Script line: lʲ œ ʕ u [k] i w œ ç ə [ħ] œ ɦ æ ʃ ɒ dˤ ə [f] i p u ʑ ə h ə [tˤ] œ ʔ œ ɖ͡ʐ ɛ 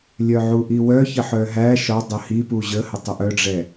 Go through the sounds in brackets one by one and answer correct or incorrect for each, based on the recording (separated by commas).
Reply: incorrect, correct, incorrect, correct